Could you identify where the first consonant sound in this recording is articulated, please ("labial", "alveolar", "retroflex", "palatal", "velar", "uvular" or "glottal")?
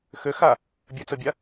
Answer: velar